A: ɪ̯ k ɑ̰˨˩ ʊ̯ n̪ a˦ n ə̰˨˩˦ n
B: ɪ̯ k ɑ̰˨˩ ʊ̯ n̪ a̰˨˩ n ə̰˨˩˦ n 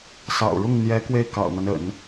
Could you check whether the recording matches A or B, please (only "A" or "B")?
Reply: A